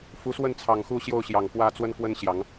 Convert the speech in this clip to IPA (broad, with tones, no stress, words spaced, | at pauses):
fu˨˦swə˥˨nt͡sʰɑ˨˩ŋxu˥˨ ɕjo˥˨ʊ̯ɕjɑ˨˩ŋpwä˥˨t͡swə˦n kwə˦nɕjɑ˨˦ŋ